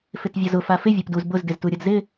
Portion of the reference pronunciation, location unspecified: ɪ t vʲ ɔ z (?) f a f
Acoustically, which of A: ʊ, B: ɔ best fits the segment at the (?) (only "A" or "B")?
A